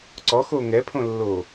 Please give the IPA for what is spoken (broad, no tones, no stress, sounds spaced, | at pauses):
ǀ ɔ x o ŋ ɛ pʰ õ lː o